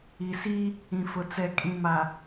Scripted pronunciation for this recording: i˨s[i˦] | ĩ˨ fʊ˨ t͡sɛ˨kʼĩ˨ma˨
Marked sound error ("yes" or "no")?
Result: no